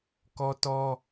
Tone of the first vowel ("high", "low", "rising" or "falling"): high